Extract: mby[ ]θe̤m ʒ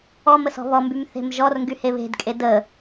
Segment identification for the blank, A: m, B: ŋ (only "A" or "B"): A